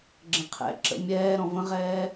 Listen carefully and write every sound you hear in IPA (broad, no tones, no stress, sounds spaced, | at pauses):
ɡ͡ǁ ə̃ qʰ ɛ̰ ǁ ə̰ mʲ ɛː ɾ ɔ̃ v ə̃ ʁ ɛː